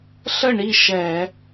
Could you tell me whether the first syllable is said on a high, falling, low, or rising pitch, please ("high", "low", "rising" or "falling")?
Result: falling